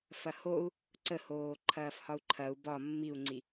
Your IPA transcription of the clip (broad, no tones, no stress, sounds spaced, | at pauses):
f ɐ h o u̯ | ǀ ə h oː ǃʰ ɐː f h ɒ u̯ ǃʰ ɐ u̯ b ɒ mː i u̯ ŋ͡ǀ i